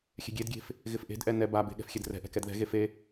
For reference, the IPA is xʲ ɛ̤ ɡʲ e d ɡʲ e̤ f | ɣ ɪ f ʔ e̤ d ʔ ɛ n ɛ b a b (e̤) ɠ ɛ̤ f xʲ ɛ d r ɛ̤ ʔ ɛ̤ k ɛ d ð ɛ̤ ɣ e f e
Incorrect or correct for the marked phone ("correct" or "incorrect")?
correct